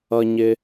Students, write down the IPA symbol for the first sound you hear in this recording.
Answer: ʌ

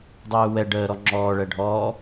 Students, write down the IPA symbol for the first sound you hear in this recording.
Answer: dˤ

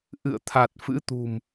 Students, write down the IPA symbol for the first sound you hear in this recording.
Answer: ʔ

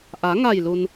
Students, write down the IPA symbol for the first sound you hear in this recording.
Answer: ʔ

